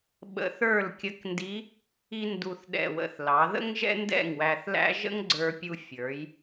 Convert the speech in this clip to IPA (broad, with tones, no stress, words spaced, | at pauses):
ɓə̰˧θə˞˥˨l kʲə˧˥kndi˧˥ | i˧ndu˨˩θɗɛ̰˨˩wə̰˨˩θ lɑ˩˧ðə̰˥ŋ ʒɛ̰˥ndɛ̰˥˨ŋwæ˧θlæ̰˥ ʒə̰˥ŋɡ͡ǀə˞˧pʲu˧ fʲə˞˩˧j